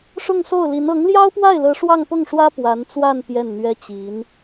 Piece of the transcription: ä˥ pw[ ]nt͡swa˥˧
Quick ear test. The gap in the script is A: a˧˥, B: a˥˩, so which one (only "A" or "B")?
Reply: A